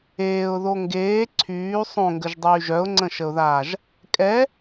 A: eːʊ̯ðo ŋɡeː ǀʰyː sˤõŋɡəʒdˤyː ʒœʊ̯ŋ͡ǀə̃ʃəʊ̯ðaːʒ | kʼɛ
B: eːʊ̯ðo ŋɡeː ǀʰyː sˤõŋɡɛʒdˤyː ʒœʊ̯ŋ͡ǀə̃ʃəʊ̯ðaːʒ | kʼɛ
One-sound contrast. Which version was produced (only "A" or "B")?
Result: A